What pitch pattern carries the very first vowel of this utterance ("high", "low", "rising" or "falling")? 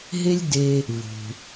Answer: high